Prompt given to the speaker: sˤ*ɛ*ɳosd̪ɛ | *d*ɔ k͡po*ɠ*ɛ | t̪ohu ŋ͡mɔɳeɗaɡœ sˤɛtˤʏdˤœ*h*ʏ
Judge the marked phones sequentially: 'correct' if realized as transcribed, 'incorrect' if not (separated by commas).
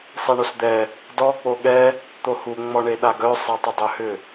correct, correct, correct, correct